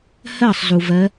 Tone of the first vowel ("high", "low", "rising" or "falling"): falling